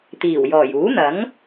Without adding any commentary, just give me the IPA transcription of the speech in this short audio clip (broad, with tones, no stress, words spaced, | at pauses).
t̪iː˨˩wjɔː˨˩j uː˨˥n̪ɐ˨˥ŋ